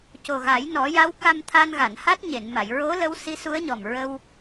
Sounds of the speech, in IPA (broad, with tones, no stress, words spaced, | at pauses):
co˨˩ɣa˨˩˦jnɔ˨˩˦ja˧˥w ka˧mt̪ʰa˧nɣa˨˩˨n ha˦˥t̚ɲe˨˩˨nma˨˩˨j ɹo˧˥ lə˧˥wsi˧˥su˧˥ə̯ɲɔ˨˩m ɹə˧w